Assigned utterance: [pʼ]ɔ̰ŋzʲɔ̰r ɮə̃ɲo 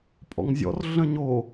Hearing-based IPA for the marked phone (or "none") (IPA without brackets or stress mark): pʼ